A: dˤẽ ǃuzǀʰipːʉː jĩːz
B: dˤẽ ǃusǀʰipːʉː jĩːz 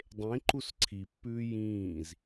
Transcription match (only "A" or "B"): B